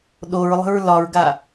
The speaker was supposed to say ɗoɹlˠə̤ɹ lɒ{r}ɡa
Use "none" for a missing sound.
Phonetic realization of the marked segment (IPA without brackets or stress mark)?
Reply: ɹ